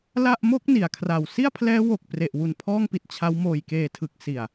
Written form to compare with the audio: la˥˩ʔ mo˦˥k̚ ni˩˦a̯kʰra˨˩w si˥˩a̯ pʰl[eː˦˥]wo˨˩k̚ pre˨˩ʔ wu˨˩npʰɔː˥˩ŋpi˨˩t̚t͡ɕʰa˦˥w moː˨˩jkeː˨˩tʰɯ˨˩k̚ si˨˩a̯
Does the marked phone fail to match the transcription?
yes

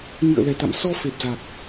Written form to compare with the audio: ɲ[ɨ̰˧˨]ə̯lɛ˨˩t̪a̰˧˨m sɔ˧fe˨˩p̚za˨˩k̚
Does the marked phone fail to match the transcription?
no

